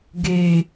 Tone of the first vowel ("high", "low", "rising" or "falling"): low